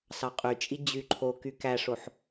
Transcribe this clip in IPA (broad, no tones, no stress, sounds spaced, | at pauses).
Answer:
s ɑ qʼ y t͡ʃʼ i d͡ʑ y ǃʰ o k y k æ ʂ o ħ